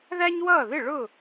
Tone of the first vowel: high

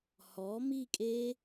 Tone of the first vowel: rising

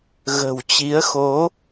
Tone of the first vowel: low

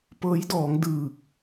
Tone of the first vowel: rising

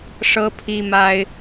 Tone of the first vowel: high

